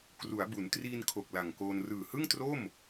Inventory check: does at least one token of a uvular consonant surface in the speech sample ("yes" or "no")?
no